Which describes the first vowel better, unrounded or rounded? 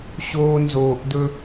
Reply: rounded